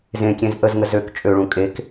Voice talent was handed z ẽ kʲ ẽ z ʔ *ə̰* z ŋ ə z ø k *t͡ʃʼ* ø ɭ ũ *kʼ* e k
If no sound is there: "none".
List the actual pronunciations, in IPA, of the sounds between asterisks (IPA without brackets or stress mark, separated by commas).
ə, t͡ʃʼ, kʼ